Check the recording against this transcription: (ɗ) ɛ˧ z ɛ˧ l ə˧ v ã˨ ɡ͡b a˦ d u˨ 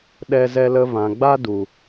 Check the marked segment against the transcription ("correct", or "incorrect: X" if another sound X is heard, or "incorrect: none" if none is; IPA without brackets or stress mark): correct